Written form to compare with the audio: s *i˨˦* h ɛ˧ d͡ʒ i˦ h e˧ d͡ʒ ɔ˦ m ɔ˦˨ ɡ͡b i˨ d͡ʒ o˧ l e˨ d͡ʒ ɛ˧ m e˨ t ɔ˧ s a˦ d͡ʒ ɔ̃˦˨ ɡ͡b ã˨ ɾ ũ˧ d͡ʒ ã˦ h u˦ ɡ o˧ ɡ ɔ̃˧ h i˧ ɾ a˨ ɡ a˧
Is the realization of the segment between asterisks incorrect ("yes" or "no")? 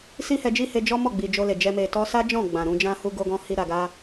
yes